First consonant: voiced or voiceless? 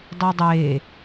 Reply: voiced